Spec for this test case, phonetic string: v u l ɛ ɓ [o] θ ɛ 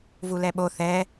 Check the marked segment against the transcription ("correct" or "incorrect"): correct